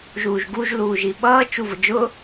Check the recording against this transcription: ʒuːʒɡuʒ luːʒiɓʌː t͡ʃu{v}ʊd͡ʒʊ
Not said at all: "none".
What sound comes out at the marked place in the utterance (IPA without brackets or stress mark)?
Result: v